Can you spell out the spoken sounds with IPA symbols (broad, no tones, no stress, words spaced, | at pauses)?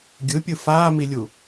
ɡʲɯpʲɯ faːmilʲu